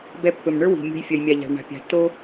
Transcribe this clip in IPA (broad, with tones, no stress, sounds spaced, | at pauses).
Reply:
b ɛ˨ pː ɵ˩ m ɳ ə˞˥ w i̤˩ mʲ o̤˨ j fʲ œ˩ j mʲ a˩ ʎ a̤˩ ɭ ɳ a̤˩ pʲ a̤˩ tː o˦